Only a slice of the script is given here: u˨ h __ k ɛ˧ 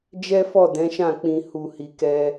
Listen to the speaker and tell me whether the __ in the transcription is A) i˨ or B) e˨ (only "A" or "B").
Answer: A